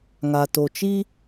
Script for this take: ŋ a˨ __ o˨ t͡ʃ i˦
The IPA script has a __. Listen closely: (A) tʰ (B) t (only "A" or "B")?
B